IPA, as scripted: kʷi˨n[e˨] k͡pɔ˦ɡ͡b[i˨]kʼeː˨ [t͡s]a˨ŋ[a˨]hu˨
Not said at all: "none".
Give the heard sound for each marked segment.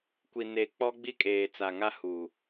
e˨, i˦, t͡s, a˦

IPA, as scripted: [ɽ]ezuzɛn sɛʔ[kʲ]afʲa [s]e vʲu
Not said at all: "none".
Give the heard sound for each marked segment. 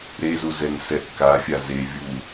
ɾ, k, z

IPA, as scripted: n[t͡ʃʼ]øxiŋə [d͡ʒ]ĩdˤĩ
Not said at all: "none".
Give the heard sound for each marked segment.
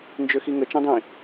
d͡ʒ, t͡ʃ

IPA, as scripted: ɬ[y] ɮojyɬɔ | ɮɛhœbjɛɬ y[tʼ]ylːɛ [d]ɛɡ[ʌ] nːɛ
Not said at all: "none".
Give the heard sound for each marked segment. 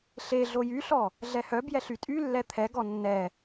e, tʼ, t̪ʰ, ɔ

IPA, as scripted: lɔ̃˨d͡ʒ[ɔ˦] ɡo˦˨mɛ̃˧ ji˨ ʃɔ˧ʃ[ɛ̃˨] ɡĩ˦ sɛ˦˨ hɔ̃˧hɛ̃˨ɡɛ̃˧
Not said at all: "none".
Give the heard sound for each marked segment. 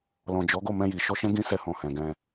ɔ˨˦, ɛ̃˦

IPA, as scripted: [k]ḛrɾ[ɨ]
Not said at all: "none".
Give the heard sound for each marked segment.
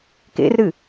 k, ɨ

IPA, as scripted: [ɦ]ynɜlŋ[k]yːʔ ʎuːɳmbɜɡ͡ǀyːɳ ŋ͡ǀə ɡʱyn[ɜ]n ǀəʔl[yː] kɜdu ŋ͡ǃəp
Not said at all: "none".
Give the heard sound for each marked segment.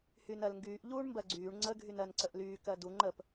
h, ɡ, ɜ, yː

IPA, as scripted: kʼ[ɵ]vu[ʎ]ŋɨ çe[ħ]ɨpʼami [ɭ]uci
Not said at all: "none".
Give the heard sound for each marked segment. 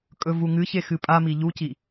ɵ, none, x, ʎ

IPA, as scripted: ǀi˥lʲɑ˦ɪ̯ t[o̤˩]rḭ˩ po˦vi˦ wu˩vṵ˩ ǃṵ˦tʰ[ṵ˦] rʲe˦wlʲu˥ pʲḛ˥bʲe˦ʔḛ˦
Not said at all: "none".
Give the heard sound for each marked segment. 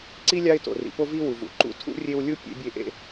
o̰˩, ṵ˥

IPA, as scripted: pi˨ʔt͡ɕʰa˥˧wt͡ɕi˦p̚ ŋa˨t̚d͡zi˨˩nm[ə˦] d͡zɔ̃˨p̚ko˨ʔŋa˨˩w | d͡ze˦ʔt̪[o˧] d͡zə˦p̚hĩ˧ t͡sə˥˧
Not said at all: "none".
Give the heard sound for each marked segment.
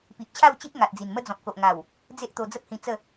ə˦, o˧

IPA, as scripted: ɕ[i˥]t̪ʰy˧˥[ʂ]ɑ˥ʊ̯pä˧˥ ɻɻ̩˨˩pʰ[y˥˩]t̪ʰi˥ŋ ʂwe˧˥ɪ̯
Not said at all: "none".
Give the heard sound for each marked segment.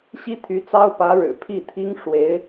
i˥, t͡s, i˥˩

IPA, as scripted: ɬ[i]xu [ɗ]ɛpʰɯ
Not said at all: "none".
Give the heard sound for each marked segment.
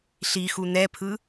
i, n̪

